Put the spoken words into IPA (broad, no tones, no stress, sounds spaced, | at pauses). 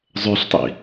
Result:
zˤ ø ɬ tˤ ḭ